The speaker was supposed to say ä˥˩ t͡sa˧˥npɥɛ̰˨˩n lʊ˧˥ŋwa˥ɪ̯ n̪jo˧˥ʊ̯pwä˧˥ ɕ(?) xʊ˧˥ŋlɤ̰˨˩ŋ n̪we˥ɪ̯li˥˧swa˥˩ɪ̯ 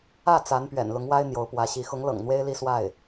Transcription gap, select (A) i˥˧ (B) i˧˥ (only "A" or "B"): B